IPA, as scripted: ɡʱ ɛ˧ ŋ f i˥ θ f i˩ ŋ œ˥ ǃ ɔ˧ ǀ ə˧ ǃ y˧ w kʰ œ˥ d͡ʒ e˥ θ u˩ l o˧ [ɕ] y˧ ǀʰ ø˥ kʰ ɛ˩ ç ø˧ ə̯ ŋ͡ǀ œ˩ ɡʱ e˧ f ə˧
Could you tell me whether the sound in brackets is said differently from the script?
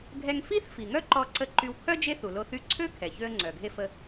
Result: yes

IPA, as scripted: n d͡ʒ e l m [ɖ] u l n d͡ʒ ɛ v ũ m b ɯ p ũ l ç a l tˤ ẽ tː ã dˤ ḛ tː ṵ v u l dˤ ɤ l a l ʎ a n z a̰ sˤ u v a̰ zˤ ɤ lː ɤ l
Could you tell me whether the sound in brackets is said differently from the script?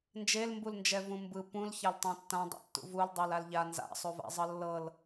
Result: yes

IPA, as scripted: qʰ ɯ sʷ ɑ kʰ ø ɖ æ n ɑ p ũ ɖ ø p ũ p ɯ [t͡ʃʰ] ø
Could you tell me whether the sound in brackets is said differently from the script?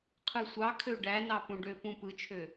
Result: no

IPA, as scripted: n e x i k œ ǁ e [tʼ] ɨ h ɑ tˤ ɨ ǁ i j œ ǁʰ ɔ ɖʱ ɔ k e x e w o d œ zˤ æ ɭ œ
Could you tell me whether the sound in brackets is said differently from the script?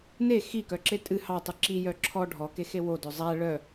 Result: no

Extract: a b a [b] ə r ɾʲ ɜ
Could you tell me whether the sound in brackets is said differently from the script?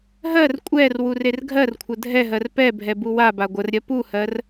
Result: yes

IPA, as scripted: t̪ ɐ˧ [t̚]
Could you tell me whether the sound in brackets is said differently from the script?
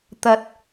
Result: no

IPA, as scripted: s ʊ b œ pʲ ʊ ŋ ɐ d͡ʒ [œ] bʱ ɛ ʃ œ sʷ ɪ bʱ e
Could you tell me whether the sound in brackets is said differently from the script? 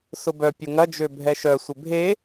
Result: yes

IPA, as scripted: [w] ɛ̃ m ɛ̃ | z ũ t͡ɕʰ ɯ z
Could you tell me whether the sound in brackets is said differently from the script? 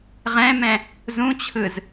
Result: yes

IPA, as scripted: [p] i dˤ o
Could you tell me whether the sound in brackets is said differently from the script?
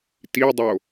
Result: yes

